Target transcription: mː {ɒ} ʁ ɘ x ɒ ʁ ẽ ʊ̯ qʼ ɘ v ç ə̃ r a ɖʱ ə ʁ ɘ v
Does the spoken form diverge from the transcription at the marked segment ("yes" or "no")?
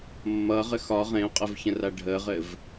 yes